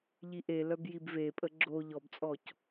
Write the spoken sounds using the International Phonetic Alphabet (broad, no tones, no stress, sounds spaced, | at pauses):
ʎ i ʔ e l œ b j i b v e pʼ ə ɡ͡ǁ o ʎ ɔ b t͡sʼ ɔ c